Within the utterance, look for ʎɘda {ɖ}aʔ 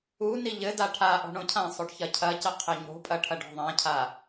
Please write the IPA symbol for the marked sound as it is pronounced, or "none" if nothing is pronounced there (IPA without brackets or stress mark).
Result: ʈʰ